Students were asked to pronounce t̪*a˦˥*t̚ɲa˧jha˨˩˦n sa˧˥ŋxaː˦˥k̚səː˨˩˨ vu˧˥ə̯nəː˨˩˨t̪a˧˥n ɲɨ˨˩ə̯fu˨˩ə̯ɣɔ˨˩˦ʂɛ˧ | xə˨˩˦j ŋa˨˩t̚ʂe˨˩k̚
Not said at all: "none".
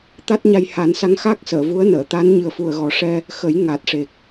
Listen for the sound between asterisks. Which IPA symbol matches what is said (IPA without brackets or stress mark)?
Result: a˦˥